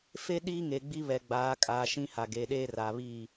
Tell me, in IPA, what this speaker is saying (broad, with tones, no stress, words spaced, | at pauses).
fe˦ ɗiː˦ŋe˨ ɡ͡bi˦βɛ˨ ɡ͡baː˨˦kʼaː˨ ʃĩ˦ha˨ ɡeː˨ɗeː˦raː˨βiː˦˨